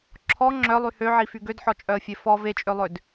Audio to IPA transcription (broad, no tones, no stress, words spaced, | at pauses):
ǁʰɔ ŋ͡ǁœlˠy høʕify ɡødħɔt͡ʃʼœə̯fʲe fɔ vet͡ʃʼølˠød